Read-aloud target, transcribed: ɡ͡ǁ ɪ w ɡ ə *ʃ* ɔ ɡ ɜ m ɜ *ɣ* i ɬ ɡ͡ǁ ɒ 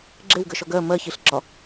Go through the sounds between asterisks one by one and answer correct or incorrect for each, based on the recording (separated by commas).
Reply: correct, incorrect